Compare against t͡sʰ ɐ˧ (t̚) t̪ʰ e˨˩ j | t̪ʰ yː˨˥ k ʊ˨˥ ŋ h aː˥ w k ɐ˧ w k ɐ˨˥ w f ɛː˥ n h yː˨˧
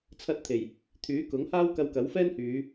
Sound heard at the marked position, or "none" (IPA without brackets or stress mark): t̚